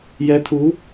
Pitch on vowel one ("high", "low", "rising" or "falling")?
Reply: rising